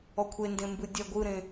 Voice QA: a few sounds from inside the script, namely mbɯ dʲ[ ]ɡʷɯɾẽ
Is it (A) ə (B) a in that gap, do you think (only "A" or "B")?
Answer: B